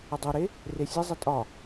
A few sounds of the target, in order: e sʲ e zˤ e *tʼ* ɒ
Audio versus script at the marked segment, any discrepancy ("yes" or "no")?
no